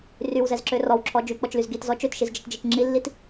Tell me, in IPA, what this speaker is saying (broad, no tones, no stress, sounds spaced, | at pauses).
r y w z ɛ z ǁ ø r ɔ w ǁʰ ɔ d͡ʒ y k͡p ɔ t͡ʃ l y z ɡ i t z ɔ t͡ʃ ø t ʃ i z d͡ʒ ə t d͡ʒ i t͡ʃ ŋ͡ǁ i lː i t